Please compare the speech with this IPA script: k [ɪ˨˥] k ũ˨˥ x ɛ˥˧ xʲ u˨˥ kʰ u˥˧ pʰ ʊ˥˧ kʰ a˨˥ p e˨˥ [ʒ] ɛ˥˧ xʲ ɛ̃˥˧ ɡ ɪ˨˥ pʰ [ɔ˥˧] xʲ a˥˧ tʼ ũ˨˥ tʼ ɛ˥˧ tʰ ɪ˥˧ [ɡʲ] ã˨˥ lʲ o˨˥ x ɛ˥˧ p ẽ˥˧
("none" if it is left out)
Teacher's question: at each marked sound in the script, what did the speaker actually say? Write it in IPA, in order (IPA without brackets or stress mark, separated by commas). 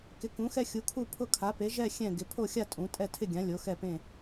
ɪ˨˥, ʒ, o˥˧, ɡʲ